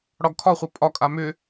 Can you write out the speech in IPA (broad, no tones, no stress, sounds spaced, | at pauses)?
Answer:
ɽ ɒ ɡ kʰ ɒ χʷ ɐ pʼ ɒ kʼ a m ʏ